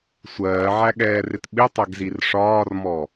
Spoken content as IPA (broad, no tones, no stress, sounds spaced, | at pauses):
sʷ ɜː ʕ æ ɠ ɛː r ɪ t ɓ ɪ tˤ ɛ ɡ z i r ʂ ɒː r m ɔ